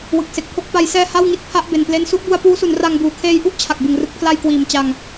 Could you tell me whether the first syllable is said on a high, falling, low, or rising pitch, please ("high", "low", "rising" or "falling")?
low